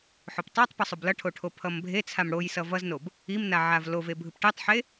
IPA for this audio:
ħ o p tˤ o tˤ p ʌ sˤ o b l ʌ ʈʰ o ʈʰ o pʰ ʌ m bʱ e t͡sʰ a m ɽ o j s ʌ v ʌ z n o b | i m n a ʕ a v l o v e bʱ ɯ p ʈ e tˤ ħ e

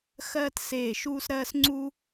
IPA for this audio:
x ɜː˧ t s eː˧˩ ʃ uː˧ s ɾ ɜː˧ s ŋ͡ǀ u˧

